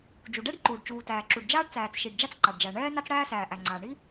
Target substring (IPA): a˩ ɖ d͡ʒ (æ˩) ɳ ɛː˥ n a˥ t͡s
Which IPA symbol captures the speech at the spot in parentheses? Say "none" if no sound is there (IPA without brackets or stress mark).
æ˩